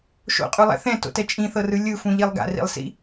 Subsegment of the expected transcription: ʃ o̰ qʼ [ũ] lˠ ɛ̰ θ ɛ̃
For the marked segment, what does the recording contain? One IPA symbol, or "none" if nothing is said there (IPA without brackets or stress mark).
u